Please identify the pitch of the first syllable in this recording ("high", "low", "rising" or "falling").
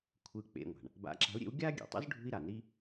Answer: falling